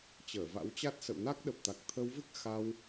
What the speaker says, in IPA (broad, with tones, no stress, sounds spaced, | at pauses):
t͡ɕ əː˧˩ v a̰˧˥ w t͡ɕ a˦˥ t̚ s ə̰˧˨ w n a˦˥ k̚ ɗ ə˨˩ p̚ t̪ a˨˩ k̚ t̪ʰ ə˨˦ w v ɨ˦˥ k̚ x a˧ w